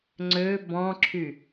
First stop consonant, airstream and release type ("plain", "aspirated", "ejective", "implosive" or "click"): click